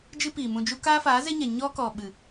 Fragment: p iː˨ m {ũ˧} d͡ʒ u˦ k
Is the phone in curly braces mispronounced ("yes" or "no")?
no